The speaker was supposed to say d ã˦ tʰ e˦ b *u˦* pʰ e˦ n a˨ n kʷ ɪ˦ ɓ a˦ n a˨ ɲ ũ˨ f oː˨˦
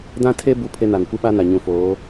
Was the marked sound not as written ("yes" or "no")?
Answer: no